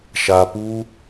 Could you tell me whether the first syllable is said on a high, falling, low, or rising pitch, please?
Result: low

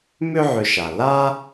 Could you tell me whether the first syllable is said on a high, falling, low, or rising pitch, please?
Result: high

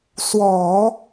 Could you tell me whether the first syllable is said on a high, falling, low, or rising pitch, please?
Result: low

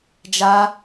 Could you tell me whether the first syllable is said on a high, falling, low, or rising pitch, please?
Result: high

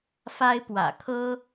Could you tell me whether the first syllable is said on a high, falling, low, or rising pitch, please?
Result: high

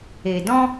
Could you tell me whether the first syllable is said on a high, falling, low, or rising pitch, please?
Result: low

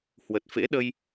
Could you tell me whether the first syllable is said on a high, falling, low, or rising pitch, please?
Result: low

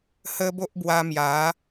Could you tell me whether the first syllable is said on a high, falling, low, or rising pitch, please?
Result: high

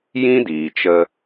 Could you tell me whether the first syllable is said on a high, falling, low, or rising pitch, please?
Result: high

